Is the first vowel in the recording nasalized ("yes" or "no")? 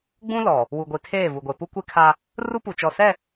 yes